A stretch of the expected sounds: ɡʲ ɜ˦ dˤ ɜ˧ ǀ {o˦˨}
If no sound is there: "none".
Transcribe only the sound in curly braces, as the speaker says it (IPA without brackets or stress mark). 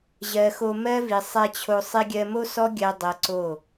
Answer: o˦˨